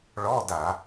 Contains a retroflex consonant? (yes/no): yes